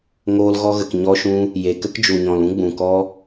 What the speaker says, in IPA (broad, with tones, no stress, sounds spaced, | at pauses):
ŋ oː˧ l ɣ ɔ˧ ɣ ə˨ k ɲ ɔ˦ ʃ ũ˦ | j e˨ k ə˦ k d͡ʒ u˨ ɲ ɔ̃˨ l ũ˦ ɡ͡b ũ˨ k ɔ˦